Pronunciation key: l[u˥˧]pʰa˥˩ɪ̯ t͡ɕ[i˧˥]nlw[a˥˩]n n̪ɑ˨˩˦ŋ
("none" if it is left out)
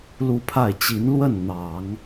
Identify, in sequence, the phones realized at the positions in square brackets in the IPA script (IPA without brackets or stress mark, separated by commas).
u˥˧, i˧˥, ə˥˩